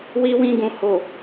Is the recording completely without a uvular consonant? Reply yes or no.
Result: yes